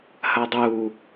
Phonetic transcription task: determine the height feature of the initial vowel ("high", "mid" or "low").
low